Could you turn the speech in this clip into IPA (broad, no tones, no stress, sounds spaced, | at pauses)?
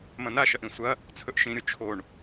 m ɐ̃ n a ʃ ɐ ʔ ĩ sʷ ɐ | t͡sʰ ɵ ʔ ʃ ĩ ɾʲ o t͡ʃʰ o ɳ